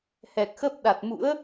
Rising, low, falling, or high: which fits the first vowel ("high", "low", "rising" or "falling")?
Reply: low